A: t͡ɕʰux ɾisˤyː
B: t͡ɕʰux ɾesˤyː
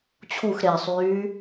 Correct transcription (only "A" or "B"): B